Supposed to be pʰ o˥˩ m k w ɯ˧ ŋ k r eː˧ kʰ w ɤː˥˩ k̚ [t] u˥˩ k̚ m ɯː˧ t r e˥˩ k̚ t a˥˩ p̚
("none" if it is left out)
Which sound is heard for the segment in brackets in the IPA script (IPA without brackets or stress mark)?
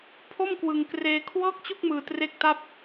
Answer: t͡ɕ